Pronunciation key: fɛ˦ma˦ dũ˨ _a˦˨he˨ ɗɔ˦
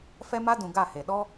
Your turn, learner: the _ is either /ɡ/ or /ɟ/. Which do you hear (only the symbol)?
ɡ